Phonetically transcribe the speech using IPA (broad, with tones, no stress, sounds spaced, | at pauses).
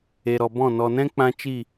e˨ ɾ ɔ˨ b ɔ̃˦˨ n ɔ˨ n ɛ̃˦ k͡p ã˧ t͡ʃ i˦˨